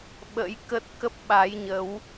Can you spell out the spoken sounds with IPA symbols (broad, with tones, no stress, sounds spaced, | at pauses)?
ɓ ə̰˧˥ j k ə˦˥ t̚ k ə˦˥ p̚ ɓ a˨˦ j ɲ ə˨˦ w